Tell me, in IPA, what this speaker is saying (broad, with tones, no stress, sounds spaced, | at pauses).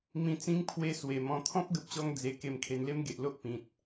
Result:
m ĩ˧ t͡s ĩ˦ ŋ pʰ w e˧ s w e˨˩ m ɔ̃˧ t̪ʰ ɔ̃˦ p̚ ɡ ə˨ p̚ ɕ ɔ˧ ŋ d͡z e˧ k e˧ m kʰ e˧ n l e˦ m ɡ e˨ ʔ l o˦ ʔ p ĩ˨ t̚